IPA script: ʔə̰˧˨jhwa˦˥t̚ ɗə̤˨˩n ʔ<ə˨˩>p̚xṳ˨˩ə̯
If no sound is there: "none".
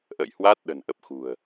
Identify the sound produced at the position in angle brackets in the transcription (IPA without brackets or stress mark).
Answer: ə˨˩